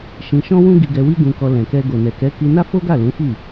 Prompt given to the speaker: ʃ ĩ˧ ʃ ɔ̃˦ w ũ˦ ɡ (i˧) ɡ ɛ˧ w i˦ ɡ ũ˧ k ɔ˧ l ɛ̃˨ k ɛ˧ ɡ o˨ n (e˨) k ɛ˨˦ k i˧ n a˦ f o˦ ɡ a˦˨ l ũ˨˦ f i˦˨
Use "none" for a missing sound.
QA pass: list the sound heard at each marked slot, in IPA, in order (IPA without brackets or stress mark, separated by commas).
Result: i˧, ɛ˨